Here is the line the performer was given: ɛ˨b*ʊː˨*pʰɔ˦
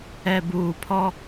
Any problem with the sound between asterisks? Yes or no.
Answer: yes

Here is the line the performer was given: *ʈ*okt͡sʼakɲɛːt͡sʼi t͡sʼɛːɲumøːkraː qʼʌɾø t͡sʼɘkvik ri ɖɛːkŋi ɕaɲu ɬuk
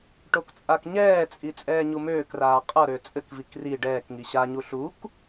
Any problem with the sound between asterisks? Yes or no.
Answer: no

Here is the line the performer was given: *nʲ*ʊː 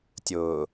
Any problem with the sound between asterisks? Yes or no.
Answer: yes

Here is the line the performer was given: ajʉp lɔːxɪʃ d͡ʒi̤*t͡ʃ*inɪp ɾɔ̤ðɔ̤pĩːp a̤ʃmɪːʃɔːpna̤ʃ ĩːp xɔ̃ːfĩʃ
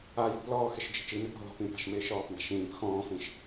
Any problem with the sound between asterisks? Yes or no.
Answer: no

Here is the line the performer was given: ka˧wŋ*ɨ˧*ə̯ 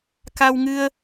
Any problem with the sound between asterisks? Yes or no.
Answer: no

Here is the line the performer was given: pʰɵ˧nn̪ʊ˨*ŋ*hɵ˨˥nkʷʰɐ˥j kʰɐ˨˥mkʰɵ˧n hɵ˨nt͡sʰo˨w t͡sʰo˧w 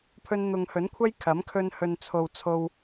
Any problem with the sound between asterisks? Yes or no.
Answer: no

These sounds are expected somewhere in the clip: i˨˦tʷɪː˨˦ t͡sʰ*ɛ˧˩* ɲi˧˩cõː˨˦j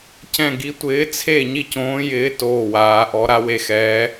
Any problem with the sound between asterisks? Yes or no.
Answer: yes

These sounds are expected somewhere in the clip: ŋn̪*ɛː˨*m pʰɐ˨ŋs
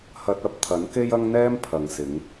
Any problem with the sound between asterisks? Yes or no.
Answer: yes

